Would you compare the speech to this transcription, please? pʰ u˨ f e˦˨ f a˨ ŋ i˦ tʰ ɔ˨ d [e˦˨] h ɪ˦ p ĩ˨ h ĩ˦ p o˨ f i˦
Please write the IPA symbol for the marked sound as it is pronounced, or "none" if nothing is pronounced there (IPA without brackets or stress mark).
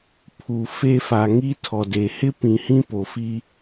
e˨